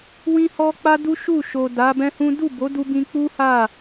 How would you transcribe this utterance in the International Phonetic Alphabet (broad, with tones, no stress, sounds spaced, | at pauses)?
w ĩ˦ h ɔ˦ k͡p a˦ d u˦ ʃ u˦˨ ʃ o˨ d a˨˦ b ɛ̃˦ h ũ˦ d u˦˨ b o˨˦ d u˧ b ĩ˧ k͡p u˦ h a˦˨